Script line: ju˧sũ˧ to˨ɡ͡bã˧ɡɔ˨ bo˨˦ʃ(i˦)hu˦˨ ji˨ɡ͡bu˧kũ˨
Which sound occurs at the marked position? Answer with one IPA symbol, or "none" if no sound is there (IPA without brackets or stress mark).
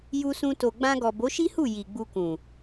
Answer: i˦